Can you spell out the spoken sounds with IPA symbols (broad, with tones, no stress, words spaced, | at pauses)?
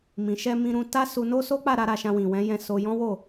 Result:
mĩ˨ʃɛ˧ mĩ˧ɾũ˧ta˦ su˧no˦so˦k͡pa˦˨ ɾa˧ ɾa˧ʃã˧ wĩ˨wɛ̃˨˦jɛ̃˧ so˧jɔ̃˦wo˦˨